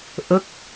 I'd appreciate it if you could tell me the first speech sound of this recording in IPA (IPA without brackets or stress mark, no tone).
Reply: ʔ